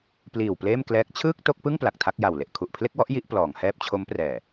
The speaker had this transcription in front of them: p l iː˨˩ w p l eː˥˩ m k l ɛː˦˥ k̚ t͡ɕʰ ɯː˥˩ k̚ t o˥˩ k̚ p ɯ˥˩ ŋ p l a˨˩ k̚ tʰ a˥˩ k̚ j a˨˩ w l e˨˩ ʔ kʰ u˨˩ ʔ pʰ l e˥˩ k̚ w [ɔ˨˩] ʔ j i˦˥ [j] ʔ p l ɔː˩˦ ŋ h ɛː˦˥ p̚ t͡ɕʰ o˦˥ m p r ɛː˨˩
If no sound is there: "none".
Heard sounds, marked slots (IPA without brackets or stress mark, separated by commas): ɔ˦˥, none